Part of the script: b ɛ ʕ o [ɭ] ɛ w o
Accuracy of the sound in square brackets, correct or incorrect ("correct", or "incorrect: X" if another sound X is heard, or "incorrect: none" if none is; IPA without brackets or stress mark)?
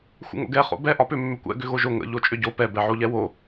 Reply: incorrect: ʎ